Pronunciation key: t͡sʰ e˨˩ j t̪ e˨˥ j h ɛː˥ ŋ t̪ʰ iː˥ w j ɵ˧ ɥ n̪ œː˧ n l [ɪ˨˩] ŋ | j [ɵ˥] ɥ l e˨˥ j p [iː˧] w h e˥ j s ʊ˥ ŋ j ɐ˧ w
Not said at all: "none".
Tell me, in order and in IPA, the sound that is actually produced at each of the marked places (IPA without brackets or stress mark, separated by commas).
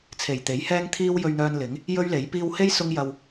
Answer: ɪ˨˥, ɵ˥, iː˧